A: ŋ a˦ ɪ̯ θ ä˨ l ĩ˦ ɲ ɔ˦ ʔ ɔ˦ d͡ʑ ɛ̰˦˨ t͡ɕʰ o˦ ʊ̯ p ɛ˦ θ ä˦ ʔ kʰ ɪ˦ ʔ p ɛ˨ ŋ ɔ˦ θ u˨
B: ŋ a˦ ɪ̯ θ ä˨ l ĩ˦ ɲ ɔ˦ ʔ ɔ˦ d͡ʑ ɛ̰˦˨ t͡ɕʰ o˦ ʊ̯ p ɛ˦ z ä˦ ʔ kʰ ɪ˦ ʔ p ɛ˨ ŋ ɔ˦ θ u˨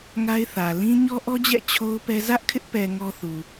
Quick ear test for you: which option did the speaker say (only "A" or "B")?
B